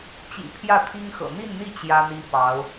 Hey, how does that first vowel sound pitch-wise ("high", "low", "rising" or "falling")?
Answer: low